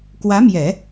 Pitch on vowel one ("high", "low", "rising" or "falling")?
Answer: rising